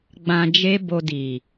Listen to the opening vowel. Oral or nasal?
nasal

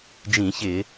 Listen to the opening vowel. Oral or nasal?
nasal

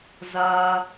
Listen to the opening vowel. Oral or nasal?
oral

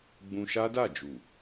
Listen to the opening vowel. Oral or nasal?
nasal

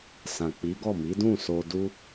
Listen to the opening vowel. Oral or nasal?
nasal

